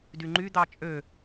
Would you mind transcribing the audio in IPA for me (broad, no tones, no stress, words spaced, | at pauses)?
dyŋ͡ǃy d̪ɑt͡ʃʼø